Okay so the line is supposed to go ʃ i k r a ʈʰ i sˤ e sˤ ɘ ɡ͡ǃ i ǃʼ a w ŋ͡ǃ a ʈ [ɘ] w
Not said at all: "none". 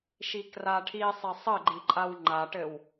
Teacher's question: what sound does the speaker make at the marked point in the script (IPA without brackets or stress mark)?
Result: ɘ